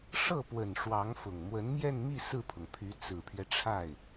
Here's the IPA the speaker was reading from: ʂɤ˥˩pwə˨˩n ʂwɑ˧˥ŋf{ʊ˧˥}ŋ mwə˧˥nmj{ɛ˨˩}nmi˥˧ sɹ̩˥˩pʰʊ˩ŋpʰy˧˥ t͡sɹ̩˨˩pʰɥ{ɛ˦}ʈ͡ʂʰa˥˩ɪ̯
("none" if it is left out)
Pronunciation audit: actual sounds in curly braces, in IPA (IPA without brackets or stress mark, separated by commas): ʊ˨˩, ɛ˥˧, ɛ˦